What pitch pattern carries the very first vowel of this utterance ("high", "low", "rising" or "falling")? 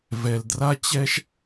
low